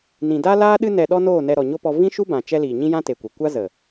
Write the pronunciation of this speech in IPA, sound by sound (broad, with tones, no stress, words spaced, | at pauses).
nĩ˨da˦laː˦ ɗɨ˦ nɛ˧ɗɔ˦noː˦˨nɛ˧ ɾɔ˨ɲo˦pɔ˧ vĩ˦ʃu˦bã˨ t͡ʃɛ˧liː˨ ɲĩ˦jã˦te˨kʷe˨ kʷa˦zə˨